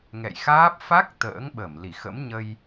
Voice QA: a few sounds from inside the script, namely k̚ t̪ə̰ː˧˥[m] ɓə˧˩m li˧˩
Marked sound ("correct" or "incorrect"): incorrect